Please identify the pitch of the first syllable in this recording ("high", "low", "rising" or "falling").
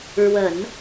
low